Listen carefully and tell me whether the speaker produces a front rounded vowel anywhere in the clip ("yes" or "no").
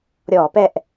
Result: no